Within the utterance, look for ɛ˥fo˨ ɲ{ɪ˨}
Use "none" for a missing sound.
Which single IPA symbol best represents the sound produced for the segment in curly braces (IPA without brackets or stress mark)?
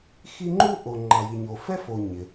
ɪ˩